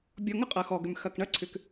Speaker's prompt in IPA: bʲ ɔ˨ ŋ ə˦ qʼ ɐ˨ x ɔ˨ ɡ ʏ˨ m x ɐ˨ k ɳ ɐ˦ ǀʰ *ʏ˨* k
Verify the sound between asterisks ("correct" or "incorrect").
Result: correct